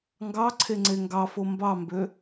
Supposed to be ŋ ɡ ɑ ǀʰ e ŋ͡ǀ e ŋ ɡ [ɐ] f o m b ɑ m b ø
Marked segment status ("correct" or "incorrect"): incorrect